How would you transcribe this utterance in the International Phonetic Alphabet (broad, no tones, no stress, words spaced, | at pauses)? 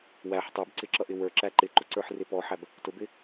wæħ tˤə˞bǀɪǁʌʔɪ wə˞ǁæ ǃɪǃʊǀə˞ħrɪ pɔħæb | tʊbɪ